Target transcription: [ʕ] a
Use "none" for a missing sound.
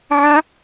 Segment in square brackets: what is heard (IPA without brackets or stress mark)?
ʕ